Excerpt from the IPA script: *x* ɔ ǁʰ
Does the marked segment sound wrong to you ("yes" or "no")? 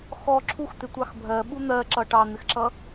no